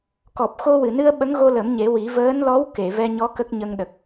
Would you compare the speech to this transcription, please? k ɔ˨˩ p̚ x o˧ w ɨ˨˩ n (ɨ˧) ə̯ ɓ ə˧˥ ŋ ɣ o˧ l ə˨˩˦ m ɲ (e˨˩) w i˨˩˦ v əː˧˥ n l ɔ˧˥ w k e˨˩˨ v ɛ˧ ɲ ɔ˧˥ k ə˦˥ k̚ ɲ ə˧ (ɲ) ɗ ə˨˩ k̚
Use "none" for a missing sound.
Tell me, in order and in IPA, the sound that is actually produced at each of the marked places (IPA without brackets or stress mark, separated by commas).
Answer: ɨ˧, e˨˩˦, ŋ